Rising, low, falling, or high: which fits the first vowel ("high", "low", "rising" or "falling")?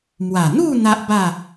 low